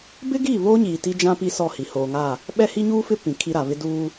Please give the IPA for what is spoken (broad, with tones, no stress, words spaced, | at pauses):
bɪ˦ɡiː˦˨βoː˦ɲiː˨ ti˦d͡ʒã˦ pi˦sɔ˦˨hi˨ hoː˨ŋa˦˨ | ɓɛ˦hi˦ɲuː˦fɪ˦ pĩ˨kʰi˦ɾa˨ βɪ˦duː˦